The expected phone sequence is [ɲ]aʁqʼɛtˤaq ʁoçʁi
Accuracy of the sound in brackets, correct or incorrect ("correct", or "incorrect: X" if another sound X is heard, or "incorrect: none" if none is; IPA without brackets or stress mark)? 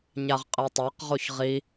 correct